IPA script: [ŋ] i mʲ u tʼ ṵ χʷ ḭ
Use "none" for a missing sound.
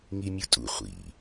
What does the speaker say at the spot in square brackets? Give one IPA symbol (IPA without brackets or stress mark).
ŋ